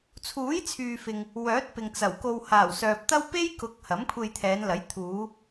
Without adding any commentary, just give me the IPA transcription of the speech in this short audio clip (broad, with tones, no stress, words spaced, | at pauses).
t͡sʰuː˨˥jt͡sʰyː˨fɪ˨ŋ | wœː˨˥t̚pɪ˨ŋt͡sɐ˨˩wko˧w haː˨˩wsœː˨p̚t̪ɐ˥w pe˥jkʊ˨˥k̚ hɐ˨˥mkʷʰe˧jt̪ʰɛː˨˧nlɐ˨˥j t̪ʰuː˨˧